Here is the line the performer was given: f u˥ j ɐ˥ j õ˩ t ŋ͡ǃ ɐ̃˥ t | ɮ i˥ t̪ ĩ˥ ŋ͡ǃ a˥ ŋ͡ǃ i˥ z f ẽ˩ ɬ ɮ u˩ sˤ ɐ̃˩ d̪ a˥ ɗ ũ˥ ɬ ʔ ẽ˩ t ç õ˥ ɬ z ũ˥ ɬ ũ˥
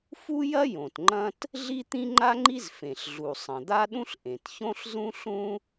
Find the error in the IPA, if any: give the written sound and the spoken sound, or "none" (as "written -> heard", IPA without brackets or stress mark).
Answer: none